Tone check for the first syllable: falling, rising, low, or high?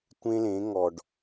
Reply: high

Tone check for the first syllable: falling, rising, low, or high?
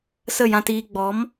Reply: falling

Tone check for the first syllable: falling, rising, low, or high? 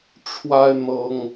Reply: high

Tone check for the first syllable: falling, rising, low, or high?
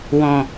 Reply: low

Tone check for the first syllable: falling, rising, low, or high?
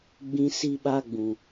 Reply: high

